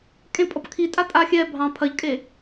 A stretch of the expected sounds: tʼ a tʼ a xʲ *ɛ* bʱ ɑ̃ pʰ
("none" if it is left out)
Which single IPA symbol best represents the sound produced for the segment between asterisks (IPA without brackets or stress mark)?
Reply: ɛ